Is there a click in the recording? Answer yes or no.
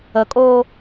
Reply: no